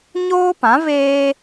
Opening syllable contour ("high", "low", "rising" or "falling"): high